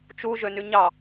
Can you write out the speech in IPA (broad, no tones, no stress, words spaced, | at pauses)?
t͡ʃu ʒønyɲɑ